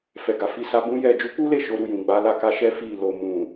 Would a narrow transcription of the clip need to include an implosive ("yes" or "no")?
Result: no